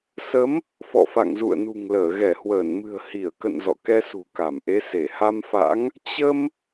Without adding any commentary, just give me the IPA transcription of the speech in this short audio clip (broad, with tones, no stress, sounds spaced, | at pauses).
s ə˨˦ m | f ɔ̰˧˨ f a̰˧˨ ŋ z ṵ˧˨ ə̯ n ṳ˨˩ ŋ l əː˧˩ ɣ ɛ˧˩ h w əː˧˩ n m ɨ̤˨˩ ə̯ h i˧˩ ə̯ k ə̰˧˨ n z ɔ̰˧˨ k ɛ˧ s ṳ˨˩ k a˧˩ m ʔ e˨˦ s e˧˩ h a˧ m f a̰˧˥ ŋ | t͡ɕ ə˧ m